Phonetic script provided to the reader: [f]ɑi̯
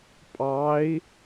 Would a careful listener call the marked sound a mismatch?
yes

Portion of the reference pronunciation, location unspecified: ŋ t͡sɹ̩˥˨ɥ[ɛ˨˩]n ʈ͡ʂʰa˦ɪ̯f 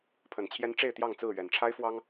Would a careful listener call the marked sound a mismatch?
no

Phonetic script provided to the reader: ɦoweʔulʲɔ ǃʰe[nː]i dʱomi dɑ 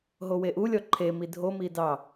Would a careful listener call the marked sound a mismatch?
yes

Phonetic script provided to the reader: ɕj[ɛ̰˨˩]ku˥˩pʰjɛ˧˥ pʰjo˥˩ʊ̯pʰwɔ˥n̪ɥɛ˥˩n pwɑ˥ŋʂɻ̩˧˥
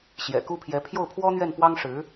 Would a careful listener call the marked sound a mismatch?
no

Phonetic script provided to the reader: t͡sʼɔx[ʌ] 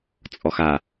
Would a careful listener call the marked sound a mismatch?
yes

